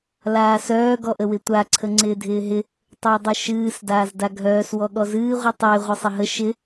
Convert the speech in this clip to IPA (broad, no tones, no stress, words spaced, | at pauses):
laːsœː ɡɔʔəwɪtʷa ǀʰəŋ͡ǀɪːdʱɪːɦɪ | tˤəːdˤəʃɨːs daːzdaɡʱœːs wɔɠɔzɨː ʁʷɨtˤɪː ʁʷɨsˤɪɦə ʃɪ